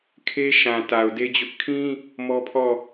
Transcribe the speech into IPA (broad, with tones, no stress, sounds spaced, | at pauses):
kʰ e˦ ʃ ã˨ t a˨ ʊ̯ d e˦ d͡ʑ ʊ˦ ʔ kʰ ĩ˦ | m ɔ˦ pʰ ɔ˦˨